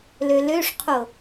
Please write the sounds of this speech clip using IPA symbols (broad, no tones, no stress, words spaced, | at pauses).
løløʂqʰo